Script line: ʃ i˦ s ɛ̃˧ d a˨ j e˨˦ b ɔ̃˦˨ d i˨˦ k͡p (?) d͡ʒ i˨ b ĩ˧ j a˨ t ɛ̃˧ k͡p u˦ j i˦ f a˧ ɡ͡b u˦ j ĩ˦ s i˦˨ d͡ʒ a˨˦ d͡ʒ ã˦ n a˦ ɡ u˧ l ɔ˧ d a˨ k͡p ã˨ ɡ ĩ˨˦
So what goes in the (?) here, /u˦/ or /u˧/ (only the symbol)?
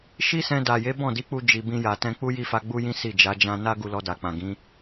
u˧